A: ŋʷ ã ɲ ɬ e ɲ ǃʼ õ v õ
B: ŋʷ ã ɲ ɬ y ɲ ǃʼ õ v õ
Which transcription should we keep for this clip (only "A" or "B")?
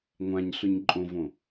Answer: B